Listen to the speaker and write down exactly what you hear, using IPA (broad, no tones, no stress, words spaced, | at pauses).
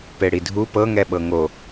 peɽidʱu pɤŋɛɓɤ ŋo